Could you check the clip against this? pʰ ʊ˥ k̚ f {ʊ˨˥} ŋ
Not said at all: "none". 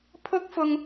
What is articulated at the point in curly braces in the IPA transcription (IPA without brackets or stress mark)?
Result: ʊ˧